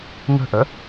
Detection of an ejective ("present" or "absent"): absent